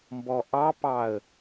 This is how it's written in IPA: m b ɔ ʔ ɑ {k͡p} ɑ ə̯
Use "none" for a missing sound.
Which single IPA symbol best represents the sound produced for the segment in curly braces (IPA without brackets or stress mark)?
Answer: p